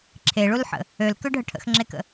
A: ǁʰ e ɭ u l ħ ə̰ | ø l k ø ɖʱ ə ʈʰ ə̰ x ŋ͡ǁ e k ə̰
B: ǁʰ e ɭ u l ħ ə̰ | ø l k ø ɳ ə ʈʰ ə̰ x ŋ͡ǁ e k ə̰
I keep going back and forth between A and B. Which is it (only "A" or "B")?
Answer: A